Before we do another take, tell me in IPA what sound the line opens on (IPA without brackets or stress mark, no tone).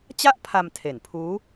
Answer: t͡ɕ